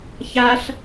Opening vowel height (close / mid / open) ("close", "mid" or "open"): open